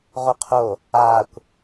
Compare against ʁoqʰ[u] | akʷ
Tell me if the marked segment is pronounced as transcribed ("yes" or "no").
no